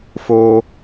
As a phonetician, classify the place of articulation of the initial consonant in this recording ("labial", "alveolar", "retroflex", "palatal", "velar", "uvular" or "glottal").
labial